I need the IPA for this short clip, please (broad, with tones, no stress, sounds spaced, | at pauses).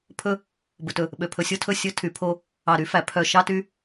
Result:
pʰ ɵ˦ | b ɵ˨ t ɵ˨ | ɓ ø˨ pʰ ɵ˨ sʲ o˦ tʰ ɵ˦˨ sʲ ɵ˦ tʰ y˨ pʰ o˦ | ɑ˨ ɾ y˦ f æ˨ pʰ œ˨ ʃ ɑ˦ t y˦